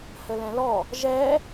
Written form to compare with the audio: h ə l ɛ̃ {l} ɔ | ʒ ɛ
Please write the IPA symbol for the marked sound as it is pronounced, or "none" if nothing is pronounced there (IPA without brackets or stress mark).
l